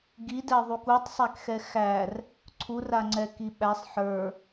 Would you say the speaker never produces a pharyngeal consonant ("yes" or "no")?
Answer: no